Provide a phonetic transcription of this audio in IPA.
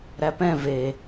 ɾ æ p ɛ̃ v e

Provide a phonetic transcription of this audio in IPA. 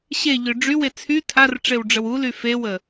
ɕ e ʎ ø ɖ͡ʐ y w e t͡sʰ y tʰ a r ʈ͡ʂ e w ɖ͡ʐ ə w u l y f e w ə

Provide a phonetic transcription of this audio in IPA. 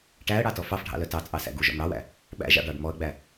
ʈ æ ə̯ ɽ ɑ t ɔ f ɑ f ɖʱ ɑ̰ l œ t ɑ t͡sʼ ɑ s æ̰ ɡ u ʒ ɔ̰ m ɽ ɑ w æ̰ | ɓ æ̰ ʒ ɑ̰ ɖ ɑ ɖ m ɔ ə̯ ɡ͡b æ

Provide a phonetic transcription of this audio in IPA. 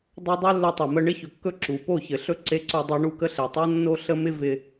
dˤ ɵ˧ dˤ o˦ lː ɵ˧ tˤ ɘ˨ m ə˧ ɳ ɪ˧ ç ɵ˨ kː ɵ˧ ǁ u˨ p o˦˨ ç ɘ˨ ɬ ɵ˧ ǀ e˧ ǀ o˧ dˤ o˧ ɳ u˦˨ k ə˦ ɬ e˨ tˤ o˦ nː o˦ ɬ ə˦ m ɪ˦ v ɪ˧

